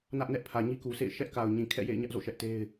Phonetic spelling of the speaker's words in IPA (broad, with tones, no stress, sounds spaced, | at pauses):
n ä˦ ʔ n ɛ˦ ʔ pʰ ä˨ ɲ i˦ k u˨ sʰ ḛ˦˨ ɪ̯ ʃ ɛ˦ ʔ k a˨ ʊ̯ ɲ ĩ˨ kʰ ɛ̰˦˨ j ḛ˦˨ ɪ̯ ɲ ä˦ ʔ z o̰˦˨ ʃ ɛ˦ ʔ t e˦ ɪ̯